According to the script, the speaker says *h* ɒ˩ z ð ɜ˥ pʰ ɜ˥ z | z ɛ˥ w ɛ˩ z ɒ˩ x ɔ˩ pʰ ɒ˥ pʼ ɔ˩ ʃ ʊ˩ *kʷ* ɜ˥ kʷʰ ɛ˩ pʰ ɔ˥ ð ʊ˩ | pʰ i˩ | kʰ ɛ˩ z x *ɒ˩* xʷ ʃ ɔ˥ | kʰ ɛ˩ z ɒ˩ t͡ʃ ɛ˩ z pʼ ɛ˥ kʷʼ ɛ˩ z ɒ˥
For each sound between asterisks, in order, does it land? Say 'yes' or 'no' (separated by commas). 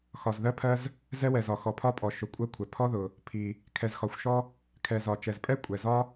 no, no, yes